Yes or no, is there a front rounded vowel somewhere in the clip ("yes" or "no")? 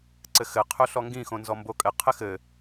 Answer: no